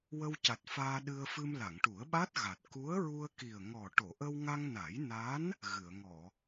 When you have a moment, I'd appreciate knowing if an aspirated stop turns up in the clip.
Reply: no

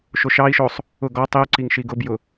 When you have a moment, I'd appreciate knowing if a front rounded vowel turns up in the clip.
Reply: no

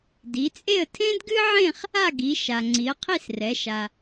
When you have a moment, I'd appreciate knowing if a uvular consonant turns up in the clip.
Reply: yes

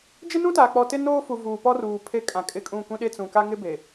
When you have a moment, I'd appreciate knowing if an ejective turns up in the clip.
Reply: yes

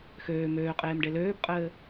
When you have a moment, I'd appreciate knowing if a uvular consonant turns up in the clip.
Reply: yes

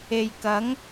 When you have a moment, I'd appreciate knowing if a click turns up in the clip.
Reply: no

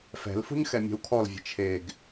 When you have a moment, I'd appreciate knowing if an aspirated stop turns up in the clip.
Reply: yes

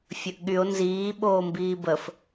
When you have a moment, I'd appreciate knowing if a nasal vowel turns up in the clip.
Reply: no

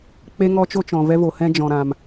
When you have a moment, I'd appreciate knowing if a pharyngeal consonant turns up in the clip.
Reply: no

